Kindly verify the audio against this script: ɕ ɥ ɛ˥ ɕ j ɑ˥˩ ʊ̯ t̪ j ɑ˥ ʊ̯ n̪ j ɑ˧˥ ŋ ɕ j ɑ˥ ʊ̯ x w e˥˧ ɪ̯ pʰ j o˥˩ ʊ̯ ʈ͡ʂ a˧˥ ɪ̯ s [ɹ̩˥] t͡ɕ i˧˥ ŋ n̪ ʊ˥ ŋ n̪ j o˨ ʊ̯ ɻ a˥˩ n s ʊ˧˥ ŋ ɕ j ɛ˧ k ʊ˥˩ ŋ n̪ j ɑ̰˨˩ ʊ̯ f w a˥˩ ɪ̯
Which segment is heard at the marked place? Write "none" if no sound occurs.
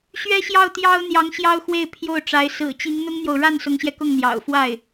ɹ̩˨˩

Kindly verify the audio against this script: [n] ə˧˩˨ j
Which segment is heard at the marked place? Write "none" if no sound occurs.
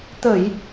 t̪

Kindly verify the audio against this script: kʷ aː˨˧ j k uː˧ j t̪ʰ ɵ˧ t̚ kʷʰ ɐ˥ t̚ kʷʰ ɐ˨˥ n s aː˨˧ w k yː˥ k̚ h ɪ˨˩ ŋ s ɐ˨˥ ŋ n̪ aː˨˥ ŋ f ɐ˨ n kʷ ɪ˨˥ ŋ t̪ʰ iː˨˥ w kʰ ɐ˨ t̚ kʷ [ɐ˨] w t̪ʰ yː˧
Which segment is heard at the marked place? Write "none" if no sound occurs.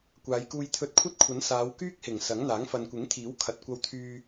ɐ˧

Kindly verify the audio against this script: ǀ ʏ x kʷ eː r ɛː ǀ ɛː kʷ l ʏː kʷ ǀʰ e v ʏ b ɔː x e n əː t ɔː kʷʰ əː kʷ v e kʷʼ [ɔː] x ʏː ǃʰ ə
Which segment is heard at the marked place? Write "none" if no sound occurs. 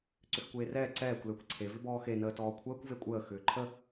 əː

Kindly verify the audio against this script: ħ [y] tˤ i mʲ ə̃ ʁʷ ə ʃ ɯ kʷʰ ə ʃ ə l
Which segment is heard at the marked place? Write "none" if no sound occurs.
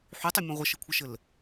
y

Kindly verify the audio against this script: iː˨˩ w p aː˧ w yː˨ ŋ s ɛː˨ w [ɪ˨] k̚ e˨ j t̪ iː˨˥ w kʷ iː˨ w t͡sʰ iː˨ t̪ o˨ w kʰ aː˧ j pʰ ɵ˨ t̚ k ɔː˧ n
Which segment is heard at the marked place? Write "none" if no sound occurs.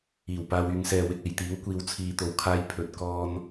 ɪ˨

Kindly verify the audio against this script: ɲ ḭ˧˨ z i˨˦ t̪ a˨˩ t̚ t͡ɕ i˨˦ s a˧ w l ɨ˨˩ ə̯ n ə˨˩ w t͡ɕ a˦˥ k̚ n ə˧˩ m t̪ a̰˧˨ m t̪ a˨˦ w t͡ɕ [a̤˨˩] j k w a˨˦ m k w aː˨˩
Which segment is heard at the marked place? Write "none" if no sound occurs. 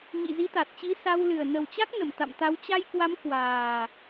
a˧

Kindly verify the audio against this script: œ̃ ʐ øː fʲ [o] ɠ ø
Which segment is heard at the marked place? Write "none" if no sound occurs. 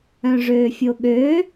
o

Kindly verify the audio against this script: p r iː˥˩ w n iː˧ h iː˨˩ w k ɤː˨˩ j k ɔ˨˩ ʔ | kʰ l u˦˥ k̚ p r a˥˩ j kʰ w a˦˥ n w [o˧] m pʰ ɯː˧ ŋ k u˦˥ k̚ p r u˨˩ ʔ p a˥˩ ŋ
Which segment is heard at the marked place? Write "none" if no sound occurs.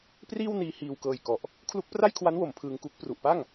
o˨˩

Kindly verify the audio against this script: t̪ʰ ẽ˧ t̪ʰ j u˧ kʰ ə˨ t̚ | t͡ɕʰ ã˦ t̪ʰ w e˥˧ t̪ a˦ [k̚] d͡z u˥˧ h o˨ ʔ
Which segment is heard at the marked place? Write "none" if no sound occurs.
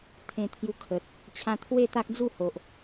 k̚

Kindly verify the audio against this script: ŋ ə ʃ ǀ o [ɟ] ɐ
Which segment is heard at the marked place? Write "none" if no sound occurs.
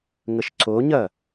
ɲ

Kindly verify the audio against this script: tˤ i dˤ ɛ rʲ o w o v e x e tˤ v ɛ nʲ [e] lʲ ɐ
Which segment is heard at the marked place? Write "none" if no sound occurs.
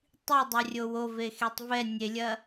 e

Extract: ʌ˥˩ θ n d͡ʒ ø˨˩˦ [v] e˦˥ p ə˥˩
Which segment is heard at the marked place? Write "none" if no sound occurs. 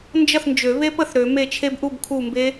β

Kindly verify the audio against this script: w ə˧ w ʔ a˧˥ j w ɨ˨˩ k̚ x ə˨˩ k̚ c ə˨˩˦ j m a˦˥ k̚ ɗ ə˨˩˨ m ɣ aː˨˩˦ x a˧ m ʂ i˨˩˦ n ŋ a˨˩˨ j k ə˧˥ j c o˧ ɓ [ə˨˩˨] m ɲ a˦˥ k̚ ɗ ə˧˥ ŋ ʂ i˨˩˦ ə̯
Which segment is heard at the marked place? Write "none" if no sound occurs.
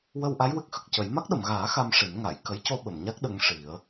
ə˨˩˨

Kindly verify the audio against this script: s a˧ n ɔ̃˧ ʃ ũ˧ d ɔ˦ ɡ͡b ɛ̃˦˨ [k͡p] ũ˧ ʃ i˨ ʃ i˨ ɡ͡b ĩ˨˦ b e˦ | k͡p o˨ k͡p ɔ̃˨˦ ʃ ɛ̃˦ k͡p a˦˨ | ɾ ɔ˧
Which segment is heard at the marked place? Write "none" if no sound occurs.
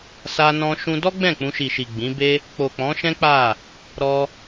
k͡p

